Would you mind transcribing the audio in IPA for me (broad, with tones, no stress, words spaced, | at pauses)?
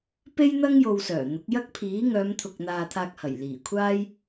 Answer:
pe˥jn̪ɐ˥ŋ jo˧wsœː˨˩n̪ʊ˨˥k̚ jɐ˥k̚pʰiː˨˥ ŋœː˨˧mt̪ʰʊ˨k̚n̪aː˨ t̪ʰaː˧k̚hɐ˨˩jliː˨˩kʷʰaː˥j